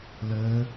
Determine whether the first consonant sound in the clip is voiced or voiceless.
voiced